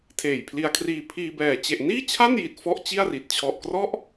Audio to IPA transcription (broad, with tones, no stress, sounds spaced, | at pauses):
tʰ eː˨˩ j pʰ l i˧ a̯ kʰ r iː˧ pʰ iː˧ b ɛː˨˩ t͡ɕ e˨˩ ʔ n iː˥˩ t͡ɕʰ a˥˩ n j i˨˩ t̚ f ɔ˥˩ ʔ t͡ɕ i˥˩ a̯ r i˨˩ t̚ t͡ɕʰ ɔ˨˩ ʔ k r ɔ˥˩ ʔ